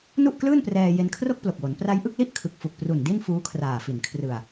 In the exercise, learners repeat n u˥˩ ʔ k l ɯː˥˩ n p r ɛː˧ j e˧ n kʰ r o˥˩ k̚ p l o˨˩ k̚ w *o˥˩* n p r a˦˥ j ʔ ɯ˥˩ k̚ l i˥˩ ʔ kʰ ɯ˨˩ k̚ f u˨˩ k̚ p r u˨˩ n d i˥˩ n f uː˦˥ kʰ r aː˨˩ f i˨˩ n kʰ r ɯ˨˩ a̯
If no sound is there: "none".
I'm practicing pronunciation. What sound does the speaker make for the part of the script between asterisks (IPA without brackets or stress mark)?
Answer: o˩˦